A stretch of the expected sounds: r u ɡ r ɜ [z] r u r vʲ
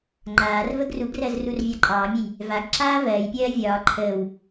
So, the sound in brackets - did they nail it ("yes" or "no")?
yes